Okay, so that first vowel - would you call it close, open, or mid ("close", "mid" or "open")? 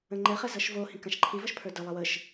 mid